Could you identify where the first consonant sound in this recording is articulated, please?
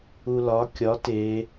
alveolar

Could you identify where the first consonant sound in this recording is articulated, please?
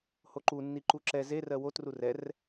glottal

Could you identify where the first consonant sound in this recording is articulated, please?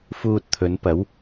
labial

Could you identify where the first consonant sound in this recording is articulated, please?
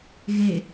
velar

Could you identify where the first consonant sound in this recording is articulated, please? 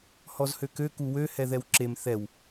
glottal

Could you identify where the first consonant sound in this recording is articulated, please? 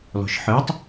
alveolar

